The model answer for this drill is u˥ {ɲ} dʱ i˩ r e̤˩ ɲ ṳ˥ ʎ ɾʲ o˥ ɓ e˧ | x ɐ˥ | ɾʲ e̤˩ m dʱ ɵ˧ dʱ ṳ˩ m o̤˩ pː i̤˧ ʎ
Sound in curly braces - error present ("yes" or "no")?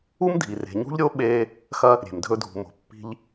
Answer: yes